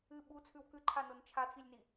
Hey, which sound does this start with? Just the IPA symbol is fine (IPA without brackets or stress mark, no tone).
ɨ